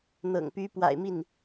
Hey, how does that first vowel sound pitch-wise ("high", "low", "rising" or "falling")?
low